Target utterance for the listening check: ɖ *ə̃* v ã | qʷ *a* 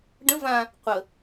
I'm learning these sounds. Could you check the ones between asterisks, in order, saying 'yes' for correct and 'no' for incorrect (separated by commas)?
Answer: yes, no